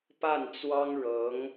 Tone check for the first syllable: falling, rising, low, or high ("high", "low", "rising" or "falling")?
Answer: falling